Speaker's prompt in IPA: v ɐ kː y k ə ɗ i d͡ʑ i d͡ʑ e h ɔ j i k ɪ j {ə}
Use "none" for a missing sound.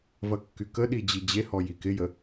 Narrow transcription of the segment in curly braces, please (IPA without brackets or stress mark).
ə